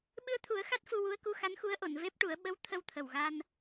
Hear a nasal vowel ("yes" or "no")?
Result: no